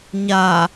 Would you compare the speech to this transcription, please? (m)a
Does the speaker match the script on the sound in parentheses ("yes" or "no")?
no